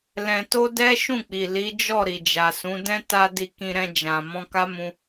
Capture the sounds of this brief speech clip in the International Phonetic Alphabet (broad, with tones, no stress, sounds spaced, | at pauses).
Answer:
l ɛ̃˧ t o˦ d ɛ˦ ʃ ũ˦˨ k͡p i˨ l i˨˦ d͡ʒ ɔ˦˨ ɾ i˨ d͡ʒ a˨ s ũ˨˦ d ɛ̃˦ t a˧ d i˧ k ĩ˧ ɾ ɛ̃˧ d͡ʒ ã˨ m ɔ̃˧ k a˦ m ũ˧